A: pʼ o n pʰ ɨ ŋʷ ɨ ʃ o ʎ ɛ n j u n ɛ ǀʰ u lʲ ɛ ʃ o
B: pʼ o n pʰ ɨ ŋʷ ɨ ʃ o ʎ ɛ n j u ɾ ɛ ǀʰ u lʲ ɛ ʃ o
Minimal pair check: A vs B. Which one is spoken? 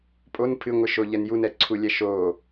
A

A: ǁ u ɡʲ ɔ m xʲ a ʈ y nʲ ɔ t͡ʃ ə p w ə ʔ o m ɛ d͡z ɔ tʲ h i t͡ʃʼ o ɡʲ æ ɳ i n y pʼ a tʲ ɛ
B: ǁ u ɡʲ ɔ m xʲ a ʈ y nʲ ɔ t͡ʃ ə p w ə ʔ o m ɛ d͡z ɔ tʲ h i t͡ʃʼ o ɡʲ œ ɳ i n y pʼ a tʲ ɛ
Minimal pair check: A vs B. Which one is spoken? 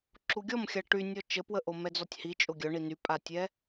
B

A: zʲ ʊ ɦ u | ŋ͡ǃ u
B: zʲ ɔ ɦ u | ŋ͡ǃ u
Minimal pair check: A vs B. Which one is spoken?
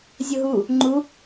A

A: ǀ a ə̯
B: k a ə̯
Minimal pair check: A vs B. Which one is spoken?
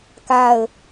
B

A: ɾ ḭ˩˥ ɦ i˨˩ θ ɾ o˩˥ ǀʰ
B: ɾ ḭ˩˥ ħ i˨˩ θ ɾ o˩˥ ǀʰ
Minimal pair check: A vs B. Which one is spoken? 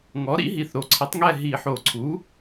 A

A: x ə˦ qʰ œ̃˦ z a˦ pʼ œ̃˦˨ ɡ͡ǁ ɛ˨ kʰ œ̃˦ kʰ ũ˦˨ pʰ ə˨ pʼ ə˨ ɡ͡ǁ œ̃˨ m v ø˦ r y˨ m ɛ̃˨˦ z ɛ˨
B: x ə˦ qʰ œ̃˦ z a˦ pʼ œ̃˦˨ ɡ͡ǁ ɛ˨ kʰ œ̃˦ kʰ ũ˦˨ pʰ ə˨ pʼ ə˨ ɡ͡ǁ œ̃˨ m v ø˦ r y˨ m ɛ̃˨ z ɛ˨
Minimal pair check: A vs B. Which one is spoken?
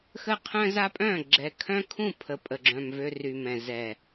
B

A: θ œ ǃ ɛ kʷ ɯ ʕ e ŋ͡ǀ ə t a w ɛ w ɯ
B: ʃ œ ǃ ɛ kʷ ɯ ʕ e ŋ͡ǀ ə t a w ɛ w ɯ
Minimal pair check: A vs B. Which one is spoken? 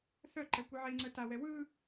A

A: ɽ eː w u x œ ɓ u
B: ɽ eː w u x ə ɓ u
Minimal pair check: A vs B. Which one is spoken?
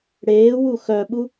A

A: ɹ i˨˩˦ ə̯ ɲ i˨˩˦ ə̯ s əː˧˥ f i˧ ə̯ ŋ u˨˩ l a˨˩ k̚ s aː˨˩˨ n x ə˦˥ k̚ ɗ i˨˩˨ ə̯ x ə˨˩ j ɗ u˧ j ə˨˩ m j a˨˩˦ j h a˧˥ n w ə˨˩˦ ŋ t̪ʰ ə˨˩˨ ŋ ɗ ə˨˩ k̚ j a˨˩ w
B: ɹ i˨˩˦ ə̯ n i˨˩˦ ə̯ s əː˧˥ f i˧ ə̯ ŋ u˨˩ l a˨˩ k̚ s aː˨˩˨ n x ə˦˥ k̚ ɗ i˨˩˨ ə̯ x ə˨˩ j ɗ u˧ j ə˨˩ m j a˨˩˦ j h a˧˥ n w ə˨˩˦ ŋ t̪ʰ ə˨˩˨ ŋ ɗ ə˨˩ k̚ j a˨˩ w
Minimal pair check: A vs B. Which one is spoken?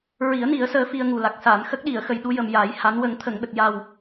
B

